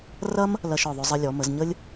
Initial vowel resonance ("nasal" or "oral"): oral